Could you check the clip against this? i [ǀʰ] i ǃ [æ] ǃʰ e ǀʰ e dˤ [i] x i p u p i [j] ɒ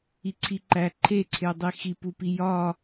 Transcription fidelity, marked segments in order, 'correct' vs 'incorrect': correct, correct, correct, correct

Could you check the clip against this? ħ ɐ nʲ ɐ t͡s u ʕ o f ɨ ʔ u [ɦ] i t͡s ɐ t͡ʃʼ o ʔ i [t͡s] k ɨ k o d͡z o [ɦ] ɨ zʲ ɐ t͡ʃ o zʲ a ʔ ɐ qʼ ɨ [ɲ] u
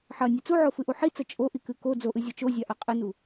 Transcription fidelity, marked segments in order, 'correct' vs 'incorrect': incorrect, incorrect, incorrect, incorrect

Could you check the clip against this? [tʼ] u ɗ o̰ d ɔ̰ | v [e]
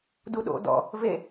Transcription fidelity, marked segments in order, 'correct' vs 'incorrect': incorrect, correct

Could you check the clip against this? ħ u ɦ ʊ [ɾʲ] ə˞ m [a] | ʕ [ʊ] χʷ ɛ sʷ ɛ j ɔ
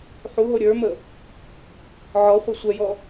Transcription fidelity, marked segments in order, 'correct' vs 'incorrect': correct, incorrect, incorrect

